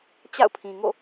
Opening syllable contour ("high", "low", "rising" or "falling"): falling